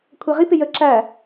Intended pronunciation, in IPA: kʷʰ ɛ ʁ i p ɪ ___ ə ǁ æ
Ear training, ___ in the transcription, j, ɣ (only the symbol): j